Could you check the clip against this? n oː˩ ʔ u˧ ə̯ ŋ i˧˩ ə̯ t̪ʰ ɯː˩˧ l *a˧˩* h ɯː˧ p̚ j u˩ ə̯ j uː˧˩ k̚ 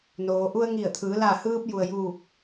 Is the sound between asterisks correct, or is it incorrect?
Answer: correct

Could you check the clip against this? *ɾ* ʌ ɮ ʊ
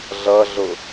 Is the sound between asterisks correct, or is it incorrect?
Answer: incorrect: ɮ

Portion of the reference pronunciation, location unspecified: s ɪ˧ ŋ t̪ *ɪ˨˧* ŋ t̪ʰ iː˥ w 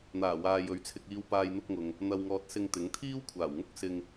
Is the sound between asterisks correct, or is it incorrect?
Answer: incorrect: ɪ˨˥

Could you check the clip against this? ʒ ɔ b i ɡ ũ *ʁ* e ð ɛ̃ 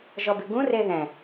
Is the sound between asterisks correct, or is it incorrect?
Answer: incorrect: r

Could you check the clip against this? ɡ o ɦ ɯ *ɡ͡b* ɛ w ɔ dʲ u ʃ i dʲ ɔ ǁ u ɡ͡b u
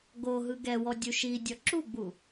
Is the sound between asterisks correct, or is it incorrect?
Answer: incorrect: ɡ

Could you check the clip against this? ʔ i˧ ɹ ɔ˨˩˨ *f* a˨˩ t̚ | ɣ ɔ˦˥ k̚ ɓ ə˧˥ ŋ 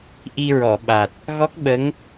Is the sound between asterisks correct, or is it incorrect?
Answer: incorrect: ɓ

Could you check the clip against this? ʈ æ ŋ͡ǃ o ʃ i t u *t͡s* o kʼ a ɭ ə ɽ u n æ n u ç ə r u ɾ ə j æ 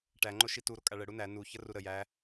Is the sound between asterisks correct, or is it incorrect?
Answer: incorrect: ɾ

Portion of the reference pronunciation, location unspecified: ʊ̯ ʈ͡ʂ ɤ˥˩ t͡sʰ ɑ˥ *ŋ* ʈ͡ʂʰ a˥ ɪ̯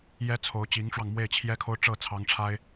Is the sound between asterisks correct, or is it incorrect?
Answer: correct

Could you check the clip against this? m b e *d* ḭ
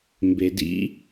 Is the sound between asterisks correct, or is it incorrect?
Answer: correct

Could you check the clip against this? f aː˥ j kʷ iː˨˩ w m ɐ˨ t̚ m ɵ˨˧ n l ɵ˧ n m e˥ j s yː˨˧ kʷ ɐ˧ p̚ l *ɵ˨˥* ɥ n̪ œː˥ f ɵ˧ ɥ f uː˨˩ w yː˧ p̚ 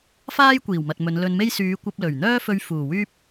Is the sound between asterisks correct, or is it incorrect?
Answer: incorrect: ɵ˨˩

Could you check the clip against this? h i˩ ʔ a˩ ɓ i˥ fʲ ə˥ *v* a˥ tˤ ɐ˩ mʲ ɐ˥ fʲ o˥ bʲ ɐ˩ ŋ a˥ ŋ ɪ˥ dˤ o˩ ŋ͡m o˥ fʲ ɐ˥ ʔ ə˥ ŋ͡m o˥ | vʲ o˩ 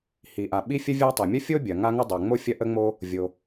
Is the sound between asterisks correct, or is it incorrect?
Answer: incorrect: vʲ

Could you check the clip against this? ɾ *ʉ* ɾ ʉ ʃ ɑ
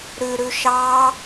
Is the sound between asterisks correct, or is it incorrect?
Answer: correct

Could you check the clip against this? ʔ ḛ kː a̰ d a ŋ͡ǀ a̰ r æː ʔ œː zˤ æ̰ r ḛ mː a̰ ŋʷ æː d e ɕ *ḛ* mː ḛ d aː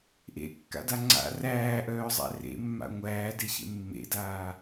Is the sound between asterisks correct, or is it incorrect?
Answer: correct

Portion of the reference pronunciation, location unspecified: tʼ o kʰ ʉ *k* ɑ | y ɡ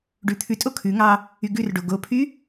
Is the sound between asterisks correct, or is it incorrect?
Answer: incorrect: ŋ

